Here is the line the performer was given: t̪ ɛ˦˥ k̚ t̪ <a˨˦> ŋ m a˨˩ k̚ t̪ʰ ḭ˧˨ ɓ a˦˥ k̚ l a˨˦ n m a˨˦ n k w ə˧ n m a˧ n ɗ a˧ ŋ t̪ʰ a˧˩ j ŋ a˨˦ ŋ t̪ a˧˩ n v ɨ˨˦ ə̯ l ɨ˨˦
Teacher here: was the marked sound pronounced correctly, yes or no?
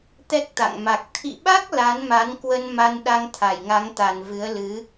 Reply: no